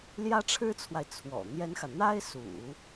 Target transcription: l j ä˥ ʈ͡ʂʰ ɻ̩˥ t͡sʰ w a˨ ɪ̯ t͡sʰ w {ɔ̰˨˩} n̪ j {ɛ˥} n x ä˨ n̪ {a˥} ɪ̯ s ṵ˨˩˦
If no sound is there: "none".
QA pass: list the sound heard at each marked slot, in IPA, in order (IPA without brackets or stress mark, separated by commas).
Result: ɔ̰˨˩, ɛ˥, a˥